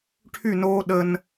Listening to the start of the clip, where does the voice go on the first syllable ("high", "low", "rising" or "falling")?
falling